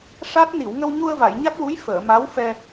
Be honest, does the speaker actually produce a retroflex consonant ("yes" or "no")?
yes